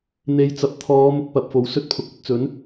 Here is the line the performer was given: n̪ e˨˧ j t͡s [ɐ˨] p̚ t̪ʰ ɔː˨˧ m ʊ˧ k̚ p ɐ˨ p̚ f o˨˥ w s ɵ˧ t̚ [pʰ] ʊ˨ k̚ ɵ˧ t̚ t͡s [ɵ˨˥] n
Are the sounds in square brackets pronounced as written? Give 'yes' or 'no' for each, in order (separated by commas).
yes, yes, yes